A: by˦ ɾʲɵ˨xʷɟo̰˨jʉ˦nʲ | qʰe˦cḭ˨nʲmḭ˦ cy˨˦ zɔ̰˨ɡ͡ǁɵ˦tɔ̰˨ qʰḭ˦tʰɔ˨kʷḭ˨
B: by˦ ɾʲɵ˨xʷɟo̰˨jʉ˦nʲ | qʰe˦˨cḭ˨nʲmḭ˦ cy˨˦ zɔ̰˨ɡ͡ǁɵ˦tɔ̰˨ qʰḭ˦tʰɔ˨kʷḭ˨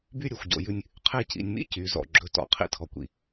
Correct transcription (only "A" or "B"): B